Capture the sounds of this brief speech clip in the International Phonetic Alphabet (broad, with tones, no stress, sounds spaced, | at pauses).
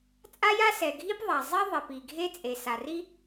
t͡sʼ a˥ j a˥ s ɛ˩ ɡʱ i˥ p ðˤ a˩ zˤ ɛ˥ ðˤ ɛ˩ p i˩ ɡʱ e˥ t͡sʼ e˩ s a˩ r i˥